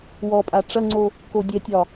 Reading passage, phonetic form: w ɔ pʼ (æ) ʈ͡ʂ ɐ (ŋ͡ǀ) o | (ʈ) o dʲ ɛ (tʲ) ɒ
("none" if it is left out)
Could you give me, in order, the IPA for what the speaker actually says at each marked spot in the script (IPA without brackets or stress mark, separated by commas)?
a, ŋ͡ǀ, k, tʲ